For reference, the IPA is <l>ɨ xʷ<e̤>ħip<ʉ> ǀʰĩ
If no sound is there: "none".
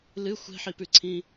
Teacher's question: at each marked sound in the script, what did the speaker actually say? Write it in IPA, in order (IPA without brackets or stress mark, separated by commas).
l, e̤, ʉ